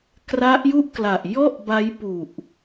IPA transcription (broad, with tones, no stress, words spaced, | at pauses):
kra˦˥ʔ ju˥˩ʔkla˨˩ʔ jɔ˥˩ʔba˦˥jpu˨˩ʔ